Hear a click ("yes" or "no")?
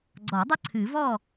yes